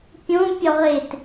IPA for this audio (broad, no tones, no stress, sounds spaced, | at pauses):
pʲ õ pʲ ɒ ʁ e t